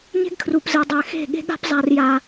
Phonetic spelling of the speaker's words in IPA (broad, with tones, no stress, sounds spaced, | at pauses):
ɲ e̤˦ ɡ kʰ r u˨ p z ɘ˨ dˤ ɛ˨ x e̤˦˨ ɠ e̤˦ ɠ a̤˦ p zˤ a˦ r j a˦